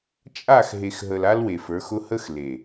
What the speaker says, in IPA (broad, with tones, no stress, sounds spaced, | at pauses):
t͡ʃʼ a˦˨ x ɦ e˨ x ɦ ə˨ l a˦ l w e˨ f ə˞˨˦ x ʊ˦ h ə˦ x l e˨